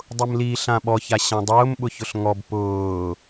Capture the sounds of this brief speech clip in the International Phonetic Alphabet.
dˤ ʊ m l i ɬ ã ɓ ɔ ç a ɕ ã dˤ ʊː m ɓ ʊ ç ʊ ɬ ŋ ɔ b p ʊː

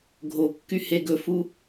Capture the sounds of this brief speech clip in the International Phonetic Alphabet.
ɡʱ o kː y h e ɡ ɵ f u

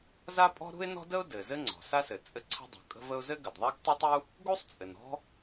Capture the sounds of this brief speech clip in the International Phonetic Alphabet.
z a˥ pʼ ɔ̤˥ ɾ ṳ˥ ɪ̯ n ɔ̤˥ d ə˥ ʊ̯ d ɘ˩ z ɘ˥ ŋ͡ǀ ɔ̤˩ s a˥ s ɘ˩ t͡sʼ ɘ˥ ǀʰ ə̤˥ dˤ ṳ˩ kʼ ə̤˥ v ə˥ ʊ̯ z ɘ˥ ɡ ə˩ d ðˤ a˥ ɡ tˤ ə˥ tˤ u˥ | ɡ u˥ sˤ t͡sʼ ɘ˩ n ɔ̤˥

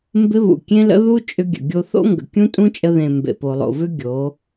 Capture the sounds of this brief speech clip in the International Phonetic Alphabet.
m b ɪ˧ β ṵ˨ kʲ ẽ˧ l ə̰˧ ð u˦ t͡ʃʼ ʏ˧ ɡʲ ə̰˨ ɡʲ o˧ θ o̰˦ ŋ ɡ ə̰˨ kʲ ũ˦ tʼ ũ˦ t͡ʃʼ ə˧ ð ẽ˨ m b ḛ˨ p o˨ lˠ o̰˨ v ʏ˦ ɡʲ o˨˦

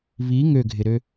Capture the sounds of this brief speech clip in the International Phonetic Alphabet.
β i ŋ ø ɡʱ ɪ ɾ ø

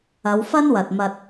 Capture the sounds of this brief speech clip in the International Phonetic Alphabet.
ɐ˨˧ w f ɐ˥ n w ɐ˨ t̚ m ɐ˧ t̚

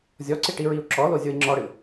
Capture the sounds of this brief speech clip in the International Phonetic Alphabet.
zʲ ɔ ǀ i ʈ i ɹ i u̯ ǁ ɔ l o zʲ o i̯ ŋ͡ǁ ɔ ɽ ɨ

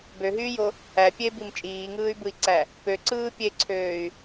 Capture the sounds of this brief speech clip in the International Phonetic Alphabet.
b ø ɦ yː j o | æ pʲ e b i m t͡ʃʼ iː ŋ ɯː y̯ b ɯ i̯ ǀ æ | p ø ǀ ɯː pʲ e ǀʰ øː y̯

